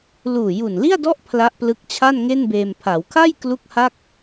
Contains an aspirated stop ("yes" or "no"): yes